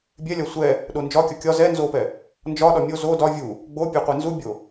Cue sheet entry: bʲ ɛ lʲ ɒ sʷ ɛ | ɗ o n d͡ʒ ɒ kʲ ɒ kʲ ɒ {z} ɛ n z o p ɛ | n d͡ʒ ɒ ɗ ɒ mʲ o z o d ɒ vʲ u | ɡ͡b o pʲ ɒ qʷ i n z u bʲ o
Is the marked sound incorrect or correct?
correct